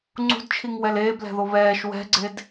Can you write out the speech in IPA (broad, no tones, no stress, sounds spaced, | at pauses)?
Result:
ŋ͡ǀ ṳ d t͡ʃʰ i ŋ w ɛ l eː b l ɛ̤ ð o β ɛː ʃ w ɛ̤ ɡ͡ǀ e d